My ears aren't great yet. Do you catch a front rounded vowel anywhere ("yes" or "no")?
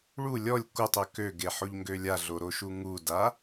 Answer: yes